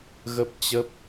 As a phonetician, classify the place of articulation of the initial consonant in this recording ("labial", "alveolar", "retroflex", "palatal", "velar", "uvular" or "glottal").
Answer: velar